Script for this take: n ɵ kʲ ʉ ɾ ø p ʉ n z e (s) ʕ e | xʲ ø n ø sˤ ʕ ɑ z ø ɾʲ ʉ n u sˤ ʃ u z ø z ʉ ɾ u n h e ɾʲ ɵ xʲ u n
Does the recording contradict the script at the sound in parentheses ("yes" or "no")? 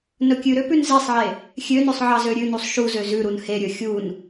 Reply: yes